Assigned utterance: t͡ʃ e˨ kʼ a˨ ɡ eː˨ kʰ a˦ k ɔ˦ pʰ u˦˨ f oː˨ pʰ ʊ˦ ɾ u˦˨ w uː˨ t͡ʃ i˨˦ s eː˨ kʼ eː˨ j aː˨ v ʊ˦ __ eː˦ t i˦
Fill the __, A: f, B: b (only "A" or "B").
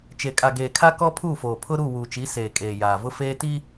A